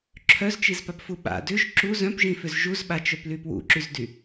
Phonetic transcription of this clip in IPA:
ǁʰœzt͡ʃizpapfu ɓa̰ dʏʒ ǁu zœ̃pʒĩfʏz ʒuzɓat͡ʃœply pwṵǁyzdy

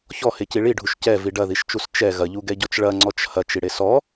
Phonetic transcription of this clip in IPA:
çɔheci ɭiɖʱuʃ cɛvi ɖɐðiʃt͡ʃus t͡ʃɛ ɣɐʎuɡɛɟɔt͡ʃ ɭɐŋ͡ǀɔt͡ʃ hɐt͡ʃiɽe sɔ

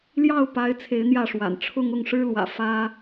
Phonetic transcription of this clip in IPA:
ljɑ˥˩ʊ̯pa˧˥ɪ̯ t͡sʰe˧˥ɪ̯n̪jä˥˩ʂwa̰˨˩n ʈ͡ʂʰʊ˥ŋʊ˥˩ŋ ʂɻ̩˥lwä̰˨˩ fä˥

